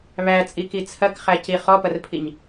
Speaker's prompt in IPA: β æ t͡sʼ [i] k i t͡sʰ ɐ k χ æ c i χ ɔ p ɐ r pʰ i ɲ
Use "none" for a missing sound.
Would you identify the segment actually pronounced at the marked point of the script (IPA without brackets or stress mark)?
i